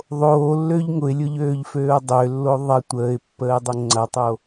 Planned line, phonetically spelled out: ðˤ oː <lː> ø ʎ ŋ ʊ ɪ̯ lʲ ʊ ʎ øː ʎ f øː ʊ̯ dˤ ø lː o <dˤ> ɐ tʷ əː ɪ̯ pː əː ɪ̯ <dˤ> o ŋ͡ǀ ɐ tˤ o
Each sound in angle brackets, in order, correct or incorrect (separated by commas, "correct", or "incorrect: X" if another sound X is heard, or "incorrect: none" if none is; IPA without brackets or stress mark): correct, incorrect: ðˤ, correct